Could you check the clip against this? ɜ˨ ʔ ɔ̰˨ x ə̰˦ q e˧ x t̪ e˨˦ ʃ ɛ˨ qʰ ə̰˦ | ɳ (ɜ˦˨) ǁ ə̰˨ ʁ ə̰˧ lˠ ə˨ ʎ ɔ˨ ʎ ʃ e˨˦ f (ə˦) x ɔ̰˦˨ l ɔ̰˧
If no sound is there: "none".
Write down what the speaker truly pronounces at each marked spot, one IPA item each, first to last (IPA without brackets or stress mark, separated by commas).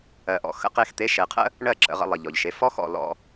ɜ˦˨, ɔ˦